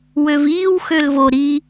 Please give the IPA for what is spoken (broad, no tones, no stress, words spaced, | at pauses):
wøviːw xølvo ɾi